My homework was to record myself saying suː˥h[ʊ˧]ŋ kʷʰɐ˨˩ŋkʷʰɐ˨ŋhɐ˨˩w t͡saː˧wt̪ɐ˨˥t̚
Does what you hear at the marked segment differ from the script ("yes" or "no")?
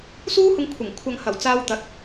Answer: no